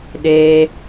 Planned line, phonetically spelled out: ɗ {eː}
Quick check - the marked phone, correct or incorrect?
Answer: correct